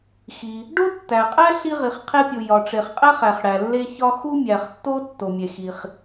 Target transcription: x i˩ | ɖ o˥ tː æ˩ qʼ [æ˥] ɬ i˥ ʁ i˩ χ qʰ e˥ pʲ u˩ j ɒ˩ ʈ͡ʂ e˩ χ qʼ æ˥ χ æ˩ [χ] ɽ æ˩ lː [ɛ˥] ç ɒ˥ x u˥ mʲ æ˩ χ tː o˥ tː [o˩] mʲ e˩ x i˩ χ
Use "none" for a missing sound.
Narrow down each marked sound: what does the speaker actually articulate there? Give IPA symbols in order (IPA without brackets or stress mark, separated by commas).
æ˥, χ, e˥, o˩